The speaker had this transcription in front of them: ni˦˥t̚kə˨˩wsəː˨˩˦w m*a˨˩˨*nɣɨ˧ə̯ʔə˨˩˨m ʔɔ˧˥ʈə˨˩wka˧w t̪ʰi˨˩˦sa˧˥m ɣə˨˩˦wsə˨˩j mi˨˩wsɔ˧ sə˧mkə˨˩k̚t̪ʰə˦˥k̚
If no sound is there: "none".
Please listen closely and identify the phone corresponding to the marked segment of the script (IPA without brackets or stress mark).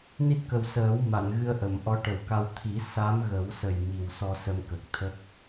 a˨˩˨